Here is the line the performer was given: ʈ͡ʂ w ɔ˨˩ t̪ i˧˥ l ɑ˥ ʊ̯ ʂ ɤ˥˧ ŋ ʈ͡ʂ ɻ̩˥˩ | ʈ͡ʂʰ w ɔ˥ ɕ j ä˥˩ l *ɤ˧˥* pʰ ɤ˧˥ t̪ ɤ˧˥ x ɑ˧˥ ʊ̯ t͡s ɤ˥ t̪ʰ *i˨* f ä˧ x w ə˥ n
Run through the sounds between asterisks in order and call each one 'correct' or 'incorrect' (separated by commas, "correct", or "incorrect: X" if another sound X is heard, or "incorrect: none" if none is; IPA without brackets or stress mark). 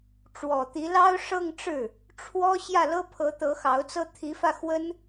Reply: incorrect: ɤ˥, incorrect: i˧˥